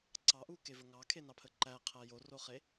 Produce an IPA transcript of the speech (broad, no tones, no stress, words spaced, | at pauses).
ǀɑʔukevə ŋɑkʰenɑpʰə ǃæqʰæ joroχe